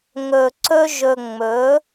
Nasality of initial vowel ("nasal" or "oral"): oral